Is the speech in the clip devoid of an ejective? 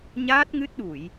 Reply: yes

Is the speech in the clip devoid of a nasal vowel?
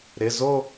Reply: yes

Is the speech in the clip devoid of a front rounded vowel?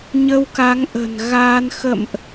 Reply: yes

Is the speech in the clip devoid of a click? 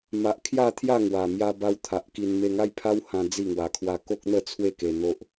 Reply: yes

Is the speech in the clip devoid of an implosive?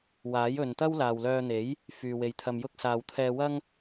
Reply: yes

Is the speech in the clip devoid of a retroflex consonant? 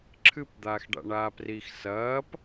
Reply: no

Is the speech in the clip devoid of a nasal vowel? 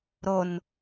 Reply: yes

